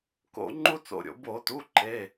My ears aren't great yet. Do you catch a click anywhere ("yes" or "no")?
yes